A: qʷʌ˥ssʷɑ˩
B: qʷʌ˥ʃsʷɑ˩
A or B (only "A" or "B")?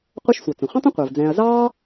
B